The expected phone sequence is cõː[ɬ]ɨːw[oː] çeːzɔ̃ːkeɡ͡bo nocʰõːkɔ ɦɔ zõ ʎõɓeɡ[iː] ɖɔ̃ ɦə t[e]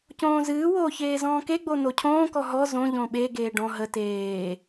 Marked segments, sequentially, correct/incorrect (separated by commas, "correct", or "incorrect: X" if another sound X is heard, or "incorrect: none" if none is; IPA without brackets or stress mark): incorrect: z, correct, incorrect: eː, incorrect: eː